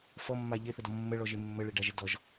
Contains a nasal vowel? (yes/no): no